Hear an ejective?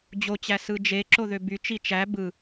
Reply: no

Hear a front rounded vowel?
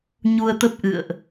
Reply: no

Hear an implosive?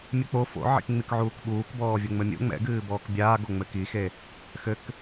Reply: yes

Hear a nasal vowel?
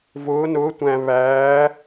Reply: yes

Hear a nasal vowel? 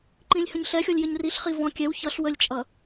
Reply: yes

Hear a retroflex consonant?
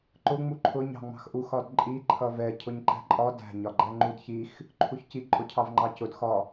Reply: no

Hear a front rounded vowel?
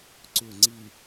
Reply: yes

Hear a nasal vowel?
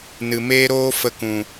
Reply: yes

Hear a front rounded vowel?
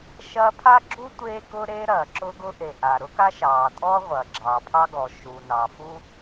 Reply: no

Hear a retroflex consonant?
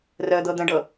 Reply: yes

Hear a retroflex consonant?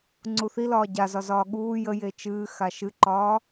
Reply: no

